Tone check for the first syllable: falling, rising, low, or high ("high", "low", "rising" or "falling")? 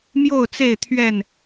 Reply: falling